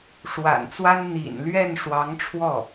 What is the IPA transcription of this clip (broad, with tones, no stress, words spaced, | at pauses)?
ʂwa̰˨˩nt͡swa˥n n̪ḭ˨˩nlɥɛ˥˩n ʂwɑ˧˥ŋʈ͡ʂʰwɔ˥˩